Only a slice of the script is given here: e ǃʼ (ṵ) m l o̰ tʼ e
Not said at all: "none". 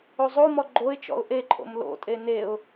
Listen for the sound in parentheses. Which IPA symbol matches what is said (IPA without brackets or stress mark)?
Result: o̰